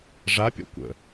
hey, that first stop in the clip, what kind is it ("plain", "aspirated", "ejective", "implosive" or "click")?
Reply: plain